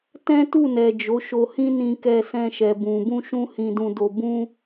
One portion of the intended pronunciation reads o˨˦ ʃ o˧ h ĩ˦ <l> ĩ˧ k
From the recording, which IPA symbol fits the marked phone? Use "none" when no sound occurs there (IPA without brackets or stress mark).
n